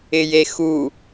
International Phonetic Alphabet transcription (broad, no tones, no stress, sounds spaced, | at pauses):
ɪ j e x u